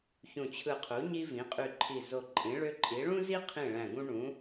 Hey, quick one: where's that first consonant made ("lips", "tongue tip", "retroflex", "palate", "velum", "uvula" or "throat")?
palate